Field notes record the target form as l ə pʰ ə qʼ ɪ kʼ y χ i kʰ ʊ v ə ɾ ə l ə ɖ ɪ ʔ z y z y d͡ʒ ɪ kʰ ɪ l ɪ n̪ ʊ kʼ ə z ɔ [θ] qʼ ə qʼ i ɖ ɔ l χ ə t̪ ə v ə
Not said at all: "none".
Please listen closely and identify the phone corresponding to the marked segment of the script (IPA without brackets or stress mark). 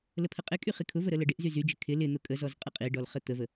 z